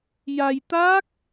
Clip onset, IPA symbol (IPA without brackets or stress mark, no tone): j